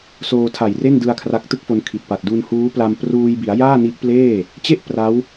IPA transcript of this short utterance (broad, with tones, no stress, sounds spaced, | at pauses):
s oː˧ tʰ a˨˩ j r e˥˩ n d ɯ˧ a̯ kʰ r a˦˥ k̚ t ɯ˥˩ k̚ f o˧ n kʰ i˨˩ t̚ p a˨˩ t̚ d u˧ n h uː˦˥ p l a˧ m p r uː˧ j b i˩˦ a̯ j aː˥˩ n i˦˥ ʔ p l eː˥˩ | t͡ɕ e˥˩ ʔ p r a˦˥ w